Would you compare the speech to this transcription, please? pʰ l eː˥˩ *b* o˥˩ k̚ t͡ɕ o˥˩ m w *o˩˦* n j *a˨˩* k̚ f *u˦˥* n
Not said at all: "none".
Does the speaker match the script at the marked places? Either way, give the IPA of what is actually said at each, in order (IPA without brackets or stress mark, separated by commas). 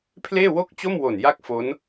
w, o˨˩, a˥˩, o˦˥